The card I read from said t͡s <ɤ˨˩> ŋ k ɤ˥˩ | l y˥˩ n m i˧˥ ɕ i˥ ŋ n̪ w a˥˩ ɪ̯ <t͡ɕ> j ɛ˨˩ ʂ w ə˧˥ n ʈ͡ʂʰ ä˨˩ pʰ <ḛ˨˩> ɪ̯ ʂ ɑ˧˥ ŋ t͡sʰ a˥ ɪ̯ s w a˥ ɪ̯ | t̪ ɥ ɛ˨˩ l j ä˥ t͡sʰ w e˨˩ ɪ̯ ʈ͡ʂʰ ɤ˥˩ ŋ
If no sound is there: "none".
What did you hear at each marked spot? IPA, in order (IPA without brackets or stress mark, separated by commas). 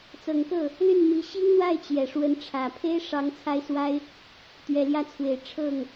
ɤ˨˩, t͡ɕ, e˥